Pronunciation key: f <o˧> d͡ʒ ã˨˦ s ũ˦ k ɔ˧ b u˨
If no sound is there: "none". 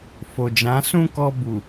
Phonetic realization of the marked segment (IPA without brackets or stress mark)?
o˨